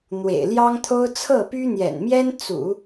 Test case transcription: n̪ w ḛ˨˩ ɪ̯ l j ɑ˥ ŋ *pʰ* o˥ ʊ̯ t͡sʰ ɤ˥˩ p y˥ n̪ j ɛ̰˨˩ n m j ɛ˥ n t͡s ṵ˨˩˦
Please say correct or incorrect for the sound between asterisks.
incorrect